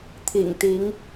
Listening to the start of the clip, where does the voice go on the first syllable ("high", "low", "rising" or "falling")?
low